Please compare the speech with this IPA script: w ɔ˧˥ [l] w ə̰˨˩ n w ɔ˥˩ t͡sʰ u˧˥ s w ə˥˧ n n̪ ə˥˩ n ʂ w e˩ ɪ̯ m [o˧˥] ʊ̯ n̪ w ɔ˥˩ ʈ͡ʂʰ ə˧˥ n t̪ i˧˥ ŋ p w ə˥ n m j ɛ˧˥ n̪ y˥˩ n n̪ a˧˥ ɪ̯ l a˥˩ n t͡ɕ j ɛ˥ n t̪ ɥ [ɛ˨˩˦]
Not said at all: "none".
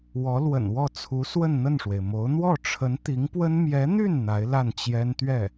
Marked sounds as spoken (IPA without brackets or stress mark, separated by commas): l, o˧˥, ɛ˥˩